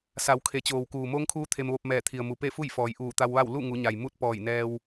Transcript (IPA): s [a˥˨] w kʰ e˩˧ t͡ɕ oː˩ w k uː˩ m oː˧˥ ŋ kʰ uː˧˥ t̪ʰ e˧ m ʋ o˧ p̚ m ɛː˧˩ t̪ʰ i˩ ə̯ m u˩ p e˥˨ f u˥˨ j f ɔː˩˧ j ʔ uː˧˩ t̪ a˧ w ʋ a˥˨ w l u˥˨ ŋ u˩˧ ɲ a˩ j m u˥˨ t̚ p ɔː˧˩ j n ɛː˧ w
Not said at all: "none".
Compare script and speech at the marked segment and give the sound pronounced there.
a˩˧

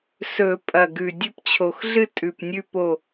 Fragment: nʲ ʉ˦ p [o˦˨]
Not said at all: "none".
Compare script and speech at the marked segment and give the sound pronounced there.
o˦˨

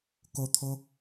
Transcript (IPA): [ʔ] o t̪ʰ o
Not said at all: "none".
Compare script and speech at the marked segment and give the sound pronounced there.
k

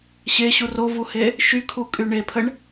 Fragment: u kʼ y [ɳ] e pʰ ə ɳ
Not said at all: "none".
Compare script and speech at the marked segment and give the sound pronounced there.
ɳ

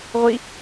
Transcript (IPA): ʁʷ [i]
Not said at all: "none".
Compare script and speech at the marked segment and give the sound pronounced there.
i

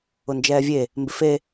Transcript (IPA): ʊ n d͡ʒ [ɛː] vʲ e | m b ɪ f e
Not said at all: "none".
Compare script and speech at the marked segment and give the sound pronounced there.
ɛː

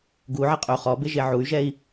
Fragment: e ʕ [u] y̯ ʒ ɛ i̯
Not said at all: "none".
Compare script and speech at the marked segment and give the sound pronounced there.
u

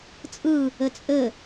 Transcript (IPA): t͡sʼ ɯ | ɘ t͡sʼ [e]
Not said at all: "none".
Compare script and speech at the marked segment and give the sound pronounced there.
ɘ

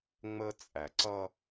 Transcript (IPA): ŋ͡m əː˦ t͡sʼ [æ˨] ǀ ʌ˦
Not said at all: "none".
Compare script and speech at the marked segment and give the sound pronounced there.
æ˨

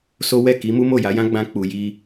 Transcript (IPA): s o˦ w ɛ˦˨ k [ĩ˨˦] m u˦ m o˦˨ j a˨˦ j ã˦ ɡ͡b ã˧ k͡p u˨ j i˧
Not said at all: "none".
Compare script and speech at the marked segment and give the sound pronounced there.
i˨˦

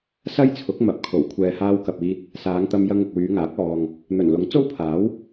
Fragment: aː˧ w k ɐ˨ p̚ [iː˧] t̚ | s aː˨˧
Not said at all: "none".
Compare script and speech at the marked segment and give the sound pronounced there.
iː˧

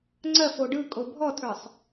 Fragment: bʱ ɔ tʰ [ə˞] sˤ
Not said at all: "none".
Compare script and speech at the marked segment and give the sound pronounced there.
ə˞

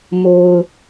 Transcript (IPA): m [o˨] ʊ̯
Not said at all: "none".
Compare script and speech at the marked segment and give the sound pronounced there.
o˨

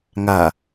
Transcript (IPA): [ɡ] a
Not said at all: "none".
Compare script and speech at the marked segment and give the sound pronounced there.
ŋ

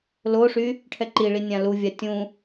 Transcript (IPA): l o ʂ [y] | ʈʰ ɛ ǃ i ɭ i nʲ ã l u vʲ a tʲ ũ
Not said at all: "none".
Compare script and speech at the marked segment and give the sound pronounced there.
y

